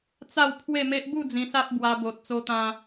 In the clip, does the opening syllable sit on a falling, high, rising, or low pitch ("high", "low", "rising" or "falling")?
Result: falling